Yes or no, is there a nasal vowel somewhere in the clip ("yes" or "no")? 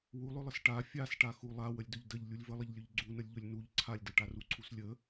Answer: no